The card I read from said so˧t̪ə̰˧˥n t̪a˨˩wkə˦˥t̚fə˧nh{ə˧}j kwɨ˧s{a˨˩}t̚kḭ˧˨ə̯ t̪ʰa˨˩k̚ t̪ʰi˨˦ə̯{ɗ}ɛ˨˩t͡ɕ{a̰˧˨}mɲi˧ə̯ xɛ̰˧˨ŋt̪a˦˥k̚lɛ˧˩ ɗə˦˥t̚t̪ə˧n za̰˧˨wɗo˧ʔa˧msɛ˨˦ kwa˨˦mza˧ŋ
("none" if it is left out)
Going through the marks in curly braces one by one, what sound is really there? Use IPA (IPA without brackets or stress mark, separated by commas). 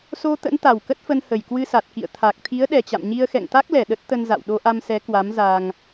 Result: ə˨˩, a˨˩, ɗ, a̰˧˨